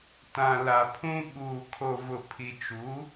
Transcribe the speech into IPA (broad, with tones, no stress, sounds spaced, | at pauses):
t ã˨ l a˨ pʰ ũ˦ ɓ uː˨ kʰ o˨ v ʊ˨ pʰ i˨ t͡ʃ u˨˦